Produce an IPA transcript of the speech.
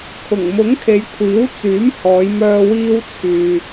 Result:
kʰ ʊ˨˩ ŋ m ʊ˨˥ ŋ kʰ e˨˧ j kʷʰ iː˨˥ w t͡s yː˨˥ m h ɔː˨˧ j m œː˧ w iː˧ w t͡sʰ yː˧

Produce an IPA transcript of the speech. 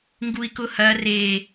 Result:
ŋ ɡ u i̯ k ʊ h ɐ r e

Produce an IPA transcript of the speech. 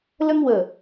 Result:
l ə˥ ŋ w ə˧˩

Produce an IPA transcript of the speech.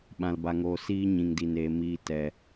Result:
ɓ ã˨ l b a˨ ŋ oː˨ s iː˦ ɲ ĩ˨ ŋ d i˨ n eː˨ m iː˨ t ɛ˨

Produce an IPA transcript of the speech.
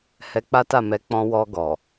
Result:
h ɛ˧ k͡p a˦ t a˦˨ m ɛ˨˦ k͡p ɔ̃˧ w ɔ˧ ɡ ɔ˨

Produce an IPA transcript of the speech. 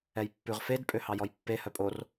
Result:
ɛ j pː ʉ ʁ f e d pʼ ø h ɑ j ɔ j pː e h œ pʼ o r

